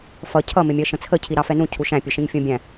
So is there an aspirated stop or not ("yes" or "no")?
yes